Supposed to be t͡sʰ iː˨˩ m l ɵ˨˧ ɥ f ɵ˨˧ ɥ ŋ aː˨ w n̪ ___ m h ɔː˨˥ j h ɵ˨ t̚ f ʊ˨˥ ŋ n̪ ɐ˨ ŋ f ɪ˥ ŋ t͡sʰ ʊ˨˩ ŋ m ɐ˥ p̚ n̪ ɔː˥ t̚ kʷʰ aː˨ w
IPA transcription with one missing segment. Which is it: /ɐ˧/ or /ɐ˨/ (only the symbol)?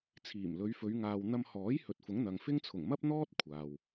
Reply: ɐ˧